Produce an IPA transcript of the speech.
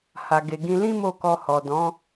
h a˨ ɡ e˨ ɡ ĩ˧ l ĩ˦ m o˦˨ k ɔ˧ h ɔ˨ d ɔ̃˨˦

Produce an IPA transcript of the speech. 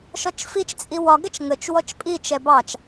ʃ ɔ t͡ʃ f i t͡ʃ t͡sʼ i w ɒ ɡ ɛ t͡ʃ ŋ ə t͡ʃ w ɔ t͡ʃ pʼ i t͡ʃ ɛ b ɑ t͡ʃ

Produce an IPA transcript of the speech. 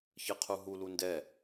ç ɯ qʰ u ɦ u l u n d ɛ

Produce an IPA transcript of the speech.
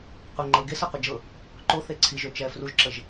qʷ ɪ ŋ͡ǃ ɤ ɡ e s ɤ qʷ ɪ d͡ʒ ɤ | ǃ o θ e ǀʰ i ʒ ø t͡ʃ ɛ f r u ʒ ǁ ə ʒ

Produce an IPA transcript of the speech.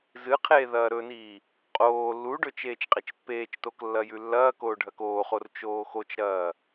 z ɨ qʰ eː ð ɐː ɾ ɵ n iː | qʼ oː lː u ɖ ɵ t͡ʃ eː t͡ʃ qʼ e t͡ʃ pː eː t͡ʃ t o k lː ɐ j ʉ lː ɐː k oː ɖʱ ɐ k oː χ o r t͡ʃ oː x o t͡ʃ ɾ ɐː

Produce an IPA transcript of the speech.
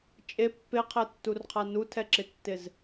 t͡ʃʼ e pː e qʰ ɛ tː u r qʰ a n u tʰ ɛ ǁ ɪ tː ɪ z

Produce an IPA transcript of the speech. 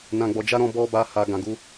n ã˧ ɡ͡b ɔ˧ d͡ʒ a˦ ɾ ɔ̃˧ b ɔ˧ b a˧ h a˨ ɡ ã˨ ɡ u˧

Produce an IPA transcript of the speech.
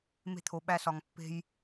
m e̤˦ t̪ʰ o˨ ɓ æ˦ s ɒ˨ ŋ pː e̤˦ j

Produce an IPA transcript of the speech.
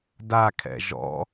d a kʰ ɛ̰ ʒ ɔ̰

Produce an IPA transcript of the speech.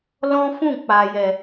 l ɔ̃˦ f ũ˦˨ k͡p a˨ j ɛ˨

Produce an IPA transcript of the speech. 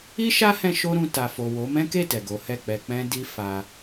i˦ ʃ a˦ h ɛ̃˧ ʃ o˦ ɾ ũ˧ t a˨ f o˨ w o˨˦ m ɛ̃˦ k e˦˨ t ɛ˨ ɡ o˨˦ h ɛ˦˨ k͡p ɛ˧ k͡p ɛ̃˦ d i˦ f a˦

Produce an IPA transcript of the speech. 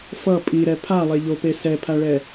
f ʌ pʼ i ɾ ɛ pʰ a lˠ e ʎ o p e s ɛ pʰ a ɭ ɛ

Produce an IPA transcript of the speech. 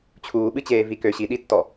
t͡ɕʰ uː ɓ ɨ t͡ɕ eː v i k ø ɕ i ɗ i tː ɔ

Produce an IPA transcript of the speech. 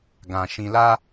ɡ ã˨ ʃ ĩ˧ l a˦

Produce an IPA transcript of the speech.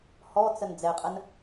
h ɔ t͡s ə n d͡z ɛ qʼ ə n

